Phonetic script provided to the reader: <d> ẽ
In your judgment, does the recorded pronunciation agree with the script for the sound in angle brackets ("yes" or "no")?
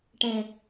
no